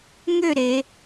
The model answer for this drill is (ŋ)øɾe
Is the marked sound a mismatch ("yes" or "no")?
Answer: no